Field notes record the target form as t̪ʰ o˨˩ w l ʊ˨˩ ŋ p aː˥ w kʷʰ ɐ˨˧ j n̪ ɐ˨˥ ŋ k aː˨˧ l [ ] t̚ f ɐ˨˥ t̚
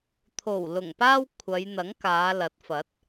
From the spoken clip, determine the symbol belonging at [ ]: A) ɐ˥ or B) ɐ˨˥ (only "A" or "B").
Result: B